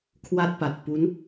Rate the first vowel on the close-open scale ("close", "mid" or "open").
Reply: open